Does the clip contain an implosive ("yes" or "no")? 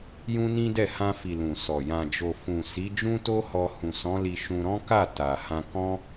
no